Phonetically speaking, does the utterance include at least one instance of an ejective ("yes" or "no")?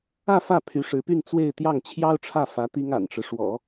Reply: no